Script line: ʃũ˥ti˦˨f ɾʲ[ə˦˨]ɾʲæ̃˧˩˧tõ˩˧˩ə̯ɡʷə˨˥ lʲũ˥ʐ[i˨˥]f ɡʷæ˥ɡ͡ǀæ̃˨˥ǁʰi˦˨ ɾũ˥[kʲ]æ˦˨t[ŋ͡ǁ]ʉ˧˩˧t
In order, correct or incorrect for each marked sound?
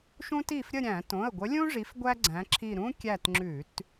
correct, correct, correct, correct

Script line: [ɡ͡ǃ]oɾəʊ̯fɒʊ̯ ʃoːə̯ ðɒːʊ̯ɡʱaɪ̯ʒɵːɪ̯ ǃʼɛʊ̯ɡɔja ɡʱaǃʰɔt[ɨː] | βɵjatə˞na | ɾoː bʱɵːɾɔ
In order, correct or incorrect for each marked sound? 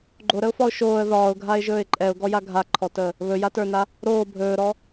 correct, incorrect

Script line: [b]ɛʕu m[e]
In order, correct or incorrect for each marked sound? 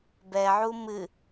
correct, incorrect

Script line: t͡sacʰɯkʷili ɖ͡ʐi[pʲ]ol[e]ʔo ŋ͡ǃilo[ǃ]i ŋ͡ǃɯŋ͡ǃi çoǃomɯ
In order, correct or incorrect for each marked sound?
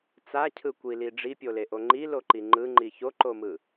correct, correct, correct

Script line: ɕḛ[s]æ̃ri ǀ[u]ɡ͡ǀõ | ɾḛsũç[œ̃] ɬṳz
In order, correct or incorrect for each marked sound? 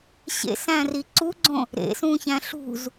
correct, correct, incorrect

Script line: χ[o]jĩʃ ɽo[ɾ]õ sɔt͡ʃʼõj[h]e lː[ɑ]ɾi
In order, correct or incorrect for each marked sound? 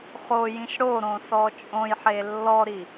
correct, correct, incorrect, incorrect

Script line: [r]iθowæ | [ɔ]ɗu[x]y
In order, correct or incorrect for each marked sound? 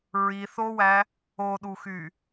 incorrect, incorrect, correct

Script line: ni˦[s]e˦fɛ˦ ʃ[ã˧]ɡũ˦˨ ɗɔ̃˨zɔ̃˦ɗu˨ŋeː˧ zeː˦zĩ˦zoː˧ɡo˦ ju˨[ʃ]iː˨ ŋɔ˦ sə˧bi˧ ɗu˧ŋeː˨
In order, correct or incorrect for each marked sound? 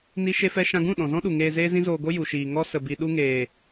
incorrect, correct, correct

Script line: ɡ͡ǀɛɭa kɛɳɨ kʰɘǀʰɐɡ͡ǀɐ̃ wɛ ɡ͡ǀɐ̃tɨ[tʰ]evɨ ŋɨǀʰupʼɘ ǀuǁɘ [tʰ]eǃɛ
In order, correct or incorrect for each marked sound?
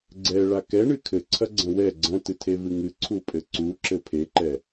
correct, incorrect

